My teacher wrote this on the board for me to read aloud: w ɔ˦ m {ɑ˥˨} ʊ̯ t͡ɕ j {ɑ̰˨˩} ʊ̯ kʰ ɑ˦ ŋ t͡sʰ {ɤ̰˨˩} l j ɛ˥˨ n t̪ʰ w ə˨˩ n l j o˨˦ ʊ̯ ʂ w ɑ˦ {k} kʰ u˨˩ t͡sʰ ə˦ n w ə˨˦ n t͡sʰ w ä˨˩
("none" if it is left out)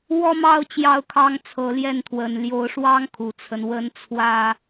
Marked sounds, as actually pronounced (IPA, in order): ɑ˥˨, ɑ˥˨, ɤ˨˦, ŋ

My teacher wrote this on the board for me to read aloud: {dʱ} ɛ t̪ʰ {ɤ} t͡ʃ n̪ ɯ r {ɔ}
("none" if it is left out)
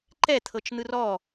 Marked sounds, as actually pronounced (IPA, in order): ǃ, ɤ, ɔ

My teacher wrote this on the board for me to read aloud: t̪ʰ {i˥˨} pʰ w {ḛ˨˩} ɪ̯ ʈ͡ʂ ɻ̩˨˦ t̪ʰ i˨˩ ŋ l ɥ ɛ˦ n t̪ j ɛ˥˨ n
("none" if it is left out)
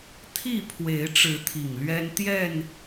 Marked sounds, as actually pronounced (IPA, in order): i˥˨, e˨˦

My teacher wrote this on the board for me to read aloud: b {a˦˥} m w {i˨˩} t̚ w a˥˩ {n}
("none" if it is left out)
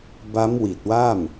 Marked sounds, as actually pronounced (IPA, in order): a˦˥, i˨˩, m

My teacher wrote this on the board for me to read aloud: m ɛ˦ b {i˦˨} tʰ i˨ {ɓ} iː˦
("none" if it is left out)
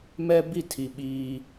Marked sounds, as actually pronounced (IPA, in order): i˦˨, ɓ

